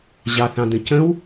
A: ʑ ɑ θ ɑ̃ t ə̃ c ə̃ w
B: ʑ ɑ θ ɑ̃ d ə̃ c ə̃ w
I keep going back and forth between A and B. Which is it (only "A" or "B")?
B